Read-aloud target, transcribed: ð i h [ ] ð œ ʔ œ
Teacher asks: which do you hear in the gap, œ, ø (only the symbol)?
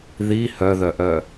œ